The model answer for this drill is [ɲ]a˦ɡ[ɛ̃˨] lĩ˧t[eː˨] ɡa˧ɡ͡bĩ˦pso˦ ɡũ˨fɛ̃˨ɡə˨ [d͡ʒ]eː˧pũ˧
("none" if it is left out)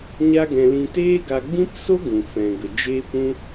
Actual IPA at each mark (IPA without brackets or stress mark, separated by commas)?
ɲ, ɛ̃˧, eː˦, d͡ʒ